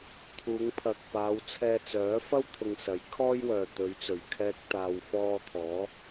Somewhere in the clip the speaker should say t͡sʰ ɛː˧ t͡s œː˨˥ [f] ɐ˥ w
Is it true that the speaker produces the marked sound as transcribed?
yes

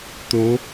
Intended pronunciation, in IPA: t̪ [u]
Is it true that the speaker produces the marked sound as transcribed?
no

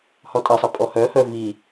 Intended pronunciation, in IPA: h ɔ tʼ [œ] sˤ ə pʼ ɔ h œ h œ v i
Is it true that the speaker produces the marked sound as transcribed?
no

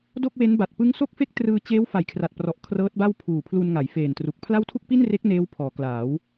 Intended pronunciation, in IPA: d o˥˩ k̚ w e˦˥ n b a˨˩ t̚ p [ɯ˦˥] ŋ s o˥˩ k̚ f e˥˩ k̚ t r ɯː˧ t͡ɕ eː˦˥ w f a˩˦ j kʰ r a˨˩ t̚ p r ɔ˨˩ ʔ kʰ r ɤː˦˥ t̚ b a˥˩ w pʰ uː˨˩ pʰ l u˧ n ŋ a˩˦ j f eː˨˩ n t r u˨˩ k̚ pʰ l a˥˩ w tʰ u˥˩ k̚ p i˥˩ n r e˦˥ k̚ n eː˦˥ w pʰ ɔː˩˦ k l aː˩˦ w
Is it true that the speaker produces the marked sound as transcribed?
yes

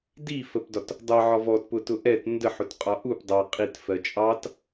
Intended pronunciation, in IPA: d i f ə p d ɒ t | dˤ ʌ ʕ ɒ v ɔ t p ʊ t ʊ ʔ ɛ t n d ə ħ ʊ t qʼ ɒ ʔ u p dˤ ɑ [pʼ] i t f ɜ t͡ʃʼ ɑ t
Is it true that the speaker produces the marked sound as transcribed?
no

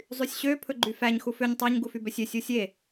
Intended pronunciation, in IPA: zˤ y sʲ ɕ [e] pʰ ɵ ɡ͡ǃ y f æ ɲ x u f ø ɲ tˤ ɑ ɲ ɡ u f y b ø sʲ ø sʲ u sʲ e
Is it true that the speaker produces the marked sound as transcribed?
no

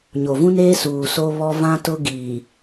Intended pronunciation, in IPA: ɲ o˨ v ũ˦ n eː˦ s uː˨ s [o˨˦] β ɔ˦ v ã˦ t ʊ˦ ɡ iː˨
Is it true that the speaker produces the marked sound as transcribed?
no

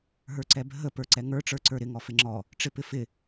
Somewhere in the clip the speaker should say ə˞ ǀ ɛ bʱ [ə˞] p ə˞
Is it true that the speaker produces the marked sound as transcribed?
no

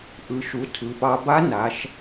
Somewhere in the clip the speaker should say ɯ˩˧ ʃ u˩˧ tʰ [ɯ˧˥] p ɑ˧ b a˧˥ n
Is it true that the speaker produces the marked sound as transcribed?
no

